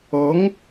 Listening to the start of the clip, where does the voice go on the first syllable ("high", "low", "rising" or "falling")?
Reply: rising